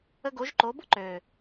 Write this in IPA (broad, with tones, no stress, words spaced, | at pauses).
ə˧ɡo˨˦ʒǃo˨˦bʊ˦ ǃø˨